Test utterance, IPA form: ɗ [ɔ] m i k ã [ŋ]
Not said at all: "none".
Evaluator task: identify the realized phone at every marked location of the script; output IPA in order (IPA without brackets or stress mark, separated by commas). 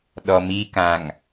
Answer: ɔ, ŋ